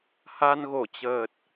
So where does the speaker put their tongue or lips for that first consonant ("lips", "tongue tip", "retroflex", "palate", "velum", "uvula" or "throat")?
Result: throat